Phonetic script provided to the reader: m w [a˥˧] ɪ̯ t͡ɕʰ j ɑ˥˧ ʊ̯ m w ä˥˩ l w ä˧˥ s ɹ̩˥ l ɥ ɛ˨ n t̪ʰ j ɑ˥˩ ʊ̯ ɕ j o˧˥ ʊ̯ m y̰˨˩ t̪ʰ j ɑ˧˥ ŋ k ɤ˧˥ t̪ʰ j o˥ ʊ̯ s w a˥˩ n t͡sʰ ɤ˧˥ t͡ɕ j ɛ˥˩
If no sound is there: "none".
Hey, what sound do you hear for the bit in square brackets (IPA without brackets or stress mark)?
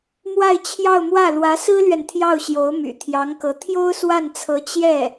a˥˧